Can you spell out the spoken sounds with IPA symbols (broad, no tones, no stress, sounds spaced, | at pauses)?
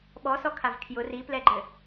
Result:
ɓ ɔ s ɔ kʰ a v kʰ j ʊ r i p l ɛ ɡ͡ǃ ɘ